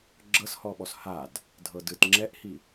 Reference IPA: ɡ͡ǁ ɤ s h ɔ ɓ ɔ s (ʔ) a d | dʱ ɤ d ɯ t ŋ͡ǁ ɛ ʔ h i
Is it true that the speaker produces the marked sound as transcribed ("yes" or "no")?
no